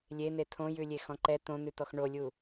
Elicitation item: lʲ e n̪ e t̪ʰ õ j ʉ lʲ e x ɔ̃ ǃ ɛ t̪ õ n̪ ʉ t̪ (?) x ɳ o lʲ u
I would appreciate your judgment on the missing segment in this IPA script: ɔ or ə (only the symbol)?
ɔ